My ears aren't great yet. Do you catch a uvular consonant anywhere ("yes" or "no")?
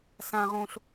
yes